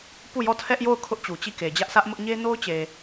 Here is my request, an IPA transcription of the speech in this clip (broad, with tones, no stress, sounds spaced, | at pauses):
p u˦˨ j ɔ˦˨ tʰ ɛ˦ ʔ j o˦˨ ʊ̯ kʰ ʊ˦ ʔ t͡ɕ u˨ t͡ɕ i˦˨ k e˨ d͡ʑ ä˦ ʔ sʰ ä˦ ʔ m ʊ˦ ʔ ɲ e˦ n o˦ ʊ̯ t͡ɕ e˨